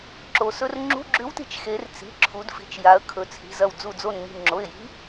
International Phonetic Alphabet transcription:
ǁ o˩˧ s ɵ˧˥˧ r ŋ͡ǁ ṳ˧˥˧ ɡ͡ǁ ʉ˧˥ w t i̤˧˩ t͡ʃ x e˩˧ r t͡s i̤˩˧˩ ǁʰ u˩˧ d f i̤˩˧ t͡ʃ j a˩˧ ə̯ kʰ ɵ˩˧ t͡sʰ i̤˩˧˩ z ɐ˧˩ w d͡z u˧˩ d͡z o˧˩ n ŋ i̤˧˩ ŋ͡ǁ o˩˧˩ ɪ̯ j i̤˧˥

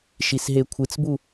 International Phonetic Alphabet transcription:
ʃ i s ɦ e kʷʰ ɨ t͡s b u

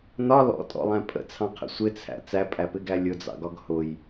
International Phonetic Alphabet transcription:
n ɒ l ɔ̰ tʼ ɔ̰ lˠ æ̃ pʼ ə̰ t͡sʰ ɑ̃ qʰ ə̰ sʷ ɪ t͡sʰ æ̰ t͡s æ pʼ æ p ɪ ɡ æ lʲ ʊ d͡z ɑ̰ ɡ ɒ ɡ h ʊ j

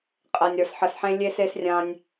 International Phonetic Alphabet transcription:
qʼ ɛ˨ nʲ ɾ ə˞˨ s ħ ə˨ s ħ ẽ˦ lʲ e˧ s e˧ s rʲ ã˦ nʲ

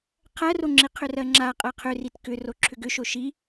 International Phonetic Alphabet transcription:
qʰ ɜ r o ŋ͡ǁ i qʰ ʏ r ɜ ŋ͡ǁ a qʼ ɜ qʰ ʏ r i t k ʏ r o ǁʰ ʏ ɡ ʏ ʃ o ʃ i

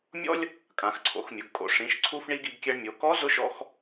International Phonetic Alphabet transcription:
mʲ ɔ̰˥ lʲ | kʼ ã˩˧ x ǀʰ o̰˩˧ x mʲ ʊ˩˧ ɡ kʼ o̰˩˧ ʂ ĩ˩˧ ʃ ǀʰ u˧ f ɳ i˧ ɡ i˩˧ ɡ kʲ ɛ˧ ɳ mʲ o˩˧ k ɔ˧˥ z ʊ˧˥ ʃ ɔ̰˧ x

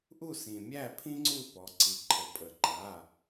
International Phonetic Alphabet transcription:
ʔ u˥˨ s ĩ˩ mʲ æ˥˨ pʰ ĩ˥ ŋ͡ǀ u˥˨ p ɔ˩ ǀ i˩ ǃʰ ə˩ pʼ ə˩ ǃ a˩˧˩

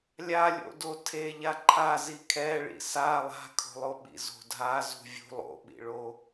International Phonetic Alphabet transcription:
lʲ a lʲ o̰ d o tʰ e ʎ a ǃʰ a z i kʰ ɛ ɭ ḭ s a lˠ a̤ kʰ o̤ lˠ o ɓ ḭ z o̤ dʱ a z ṳ vʲ ṳ lˠ o̰ ɓ ḭ ɭ o

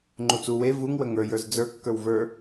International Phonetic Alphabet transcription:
ŋ͡ǃ u t͡s u w e v u ŋ w ə ŋ ə˞ j ə˞ z d͡z ə˞ kː ə˞ w v ə˞

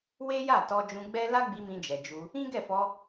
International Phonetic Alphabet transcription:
w e˦ j a˦˨ t ɔ˧ d͡ʒ ũ˧ ɡ͡b ɛ˦ l a˦ ɡ͡b i˧ m ĩ˧ d͡ʒ ɛ˨ d͡ʒ u˧ | ĩ˦ ɡ ɛ˦˨ f ɔ˧

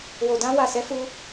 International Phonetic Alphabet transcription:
w o˨ d ã˧ w a˨ s ɛ˨˦ f u˧

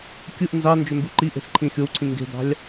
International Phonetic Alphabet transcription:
kʲ ɯ ʔ n z ɑ n d͡ʒ ø m b y ǃ i ʔ e̤ s ǃʰ ĩ xʲ o w ǀʰ ĩ ŋ ɡ e̤ d̪ ɑ̤ lʲ

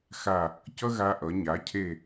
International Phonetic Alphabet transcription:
x a˧˩ | c ʌ˥ ɣ a˧ ʔ ʌ˩˧ ɲ a˩˧ cʰ e˧˩

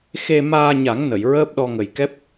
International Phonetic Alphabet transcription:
x e˧ m aː˧ ɲ a˨˩˦ ŋ n ə˨˩˨ j ɹ əː˦˥ p̚ ɗ ɔ˧ ŋ ə˨˩ j k ɛ˦˥ p̚

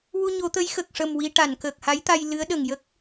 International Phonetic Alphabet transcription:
w u˧ ɲ o˨˩˦ t̪ ə˧˥ j x ə˨˩ k̚ ʂ ə˨˩ m w i˧ ʈ a˨˩˨ n k əː˨˩ k̚ h a˧˥ j t̪ a˧ j l ɨ˧˥ ə̯ ɗ ə˨˩ ŋ j ə˦˥ k̚

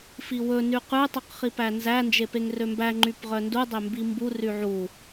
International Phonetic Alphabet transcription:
f i w ɵ n y q ʉ tˤ u q χ i p æ n z æ n d͡ʒ e p e ŋ r ø m b æ ŋ͡ǃ y p ʁ œ n d u dˤ ø m b i m b u r y ʕ u

